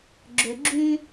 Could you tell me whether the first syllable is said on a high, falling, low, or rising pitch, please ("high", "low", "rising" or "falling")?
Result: low